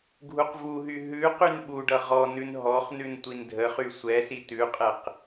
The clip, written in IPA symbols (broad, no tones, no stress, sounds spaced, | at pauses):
ɡʱ u q v u ɦ y ɦ ʉ q y n ɓ u ɖ ʌ ʁ ɔ n ʉ n ɦ ɔ χ n ʉ n tʷ i n dʱ ə χ y sʷ ɛ s i t ʉ qʼ ɛ q